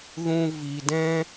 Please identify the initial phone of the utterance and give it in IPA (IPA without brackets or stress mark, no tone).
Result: ð